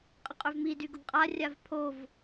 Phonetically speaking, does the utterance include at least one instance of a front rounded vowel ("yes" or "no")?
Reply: yes